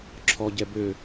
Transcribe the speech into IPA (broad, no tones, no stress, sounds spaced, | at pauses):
ǁʰ ɔ ɟ ɛ b ø